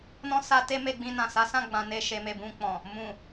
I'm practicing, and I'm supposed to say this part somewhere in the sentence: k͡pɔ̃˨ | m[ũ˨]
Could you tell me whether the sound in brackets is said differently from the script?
no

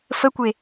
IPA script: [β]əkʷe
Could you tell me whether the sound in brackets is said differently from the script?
yes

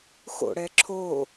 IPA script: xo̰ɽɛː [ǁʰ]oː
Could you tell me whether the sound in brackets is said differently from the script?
no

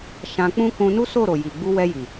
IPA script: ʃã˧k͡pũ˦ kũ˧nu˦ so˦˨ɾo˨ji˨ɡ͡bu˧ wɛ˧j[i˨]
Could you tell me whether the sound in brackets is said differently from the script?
no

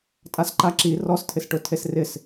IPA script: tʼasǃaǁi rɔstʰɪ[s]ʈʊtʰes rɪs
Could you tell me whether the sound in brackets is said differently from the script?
no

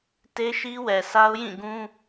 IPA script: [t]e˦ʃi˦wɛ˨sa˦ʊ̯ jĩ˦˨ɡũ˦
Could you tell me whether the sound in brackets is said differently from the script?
no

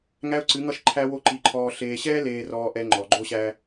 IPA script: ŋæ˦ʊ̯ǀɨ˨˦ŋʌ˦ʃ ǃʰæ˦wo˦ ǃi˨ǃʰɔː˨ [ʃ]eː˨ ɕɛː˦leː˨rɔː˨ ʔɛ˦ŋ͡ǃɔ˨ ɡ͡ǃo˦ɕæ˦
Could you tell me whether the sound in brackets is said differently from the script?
yes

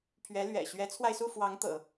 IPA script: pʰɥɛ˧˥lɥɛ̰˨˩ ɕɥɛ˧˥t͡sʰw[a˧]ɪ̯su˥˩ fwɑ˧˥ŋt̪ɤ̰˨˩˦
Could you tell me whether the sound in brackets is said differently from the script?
no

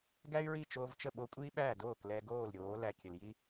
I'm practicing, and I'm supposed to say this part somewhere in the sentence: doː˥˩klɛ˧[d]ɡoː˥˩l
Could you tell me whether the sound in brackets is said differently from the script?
yes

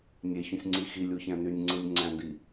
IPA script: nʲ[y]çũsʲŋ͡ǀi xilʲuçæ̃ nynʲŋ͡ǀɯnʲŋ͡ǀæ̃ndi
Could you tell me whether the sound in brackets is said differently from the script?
yes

